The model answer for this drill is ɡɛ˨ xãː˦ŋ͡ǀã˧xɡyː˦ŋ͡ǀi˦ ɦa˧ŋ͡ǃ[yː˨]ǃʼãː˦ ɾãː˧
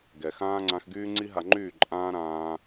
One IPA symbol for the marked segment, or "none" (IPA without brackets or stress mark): yː˦˨